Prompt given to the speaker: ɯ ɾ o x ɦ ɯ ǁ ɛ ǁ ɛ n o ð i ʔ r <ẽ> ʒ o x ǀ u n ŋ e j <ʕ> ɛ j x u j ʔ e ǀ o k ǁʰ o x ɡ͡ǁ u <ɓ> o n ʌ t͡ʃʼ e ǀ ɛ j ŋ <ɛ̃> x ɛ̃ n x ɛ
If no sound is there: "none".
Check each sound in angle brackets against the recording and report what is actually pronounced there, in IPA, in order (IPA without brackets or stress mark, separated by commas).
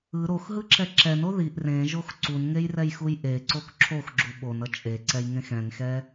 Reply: ẽ, r, ɓ, ẽ